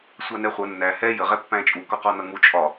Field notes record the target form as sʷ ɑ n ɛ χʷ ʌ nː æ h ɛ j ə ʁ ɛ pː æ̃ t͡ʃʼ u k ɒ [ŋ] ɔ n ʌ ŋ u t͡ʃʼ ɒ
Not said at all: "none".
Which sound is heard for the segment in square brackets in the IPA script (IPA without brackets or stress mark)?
q